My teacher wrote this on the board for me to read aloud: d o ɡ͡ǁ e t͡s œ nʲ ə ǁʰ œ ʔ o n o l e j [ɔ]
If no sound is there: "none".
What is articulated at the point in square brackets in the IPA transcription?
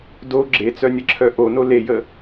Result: ə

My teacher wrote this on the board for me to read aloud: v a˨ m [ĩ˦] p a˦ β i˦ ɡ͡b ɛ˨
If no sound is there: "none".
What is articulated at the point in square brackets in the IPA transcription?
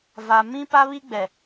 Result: ĩ˦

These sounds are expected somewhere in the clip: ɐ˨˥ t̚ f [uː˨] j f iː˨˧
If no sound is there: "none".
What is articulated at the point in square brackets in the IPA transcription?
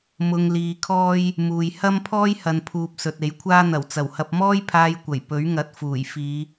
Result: uː˨˩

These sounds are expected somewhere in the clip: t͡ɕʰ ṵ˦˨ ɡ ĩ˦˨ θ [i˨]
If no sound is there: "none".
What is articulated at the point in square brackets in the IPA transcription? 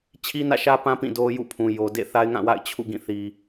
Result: i˨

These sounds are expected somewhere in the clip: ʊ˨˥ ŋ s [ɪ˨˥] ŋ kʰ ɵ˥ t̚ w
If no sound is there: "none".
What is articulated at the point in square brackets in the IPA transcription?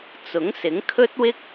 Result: ɪ˨˥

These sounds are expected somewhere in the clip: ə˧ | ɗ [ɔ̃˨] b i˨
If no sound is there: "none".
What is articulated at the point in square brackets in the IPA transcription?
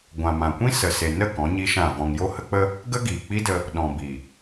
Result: ɔ̃˨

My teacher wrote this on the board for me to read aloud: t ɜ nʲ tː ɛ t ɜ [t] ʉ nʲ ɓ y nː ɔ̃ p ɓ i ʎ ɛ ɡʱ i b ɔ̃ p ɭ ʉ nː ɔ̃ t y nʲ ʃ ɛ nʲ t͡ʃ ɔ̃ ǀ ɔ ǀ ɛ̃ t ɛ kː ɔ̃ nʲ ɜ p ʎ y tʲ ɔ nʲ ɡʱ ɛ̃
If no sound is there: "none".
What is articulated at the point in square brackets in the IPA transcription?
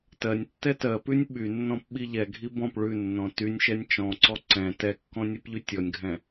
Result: p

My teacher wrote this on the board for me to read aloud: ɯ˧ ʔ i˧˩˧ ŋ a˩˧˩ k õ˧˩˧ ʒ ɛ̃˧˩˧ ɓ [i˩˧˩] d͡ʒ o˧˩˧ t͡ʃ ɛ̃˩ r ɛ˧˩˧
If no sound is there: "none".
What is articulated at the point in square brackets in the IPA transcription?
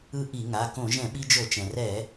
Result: i˧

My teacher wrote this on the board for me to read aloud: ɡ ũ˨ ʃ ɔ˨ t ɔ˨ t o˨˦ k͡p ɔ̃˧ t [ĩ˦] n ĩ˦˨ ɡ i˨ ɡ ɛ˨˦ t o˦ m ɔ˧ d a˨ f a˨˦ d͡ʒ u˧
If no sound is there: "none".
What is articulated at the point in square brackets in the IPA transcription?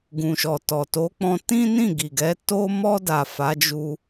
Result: ĩ˦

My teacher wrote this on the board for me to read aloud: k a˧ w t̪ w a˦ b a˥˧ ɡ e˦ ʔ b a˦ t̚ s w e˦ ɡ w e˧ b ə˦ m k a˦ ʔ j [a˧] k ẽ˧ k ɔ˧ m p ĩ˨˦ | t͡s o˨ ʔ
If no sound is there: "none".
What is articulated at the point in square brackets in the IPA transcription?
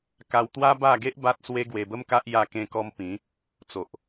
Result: a˧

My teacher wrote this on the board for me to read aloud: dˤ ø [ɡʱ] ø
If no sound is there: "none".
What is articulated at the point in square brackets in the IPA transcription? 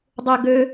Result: ɡ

